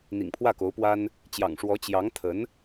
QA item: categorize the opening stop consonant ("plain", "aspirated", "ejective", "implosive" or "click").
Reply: aspirated